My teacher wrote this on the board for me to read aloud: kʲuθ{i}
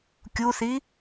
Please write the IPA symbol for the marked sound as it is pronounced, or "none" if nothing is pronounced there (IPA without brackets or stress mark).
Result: i